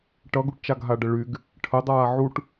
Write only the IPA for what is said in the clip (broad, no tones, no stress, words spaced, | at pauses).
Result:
ʈʌɡuʈt͡ʃaɡ ɦaɖəɭyɡ | ʈʰədˤaː ʕuʈ